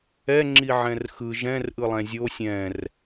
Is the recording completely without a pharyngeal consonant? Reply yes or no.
no